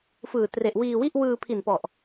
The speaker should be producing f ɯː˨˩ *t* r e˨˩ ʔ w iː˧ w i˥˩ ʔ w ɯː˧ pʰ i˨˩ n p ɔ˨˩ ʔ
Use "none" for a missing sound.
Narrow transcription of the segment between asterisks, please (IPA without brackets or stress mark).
t